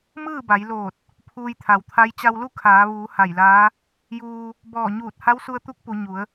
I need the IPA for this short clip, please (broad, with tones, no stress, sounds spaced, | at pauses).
m ɯː˥˨ b a˩˧ j l oː˧˩ t̚ | pʰ uː˧ j t̪ʰ a˩˧ w t̪ʰ a˧˥ j t͡ɕ a˧ w l u˥˨ kʰ aː˩˧ ʋ uː˩˧ h a˧˩ j l aː˧˥ | j uː˧ | b ɔː˧˩ ɲ uː˧˩ t̚ h a˧˥ w s u˧ ə̯ t̪ u˧˥ k̚ p u˩˧ ɲ u˩˧ ə̯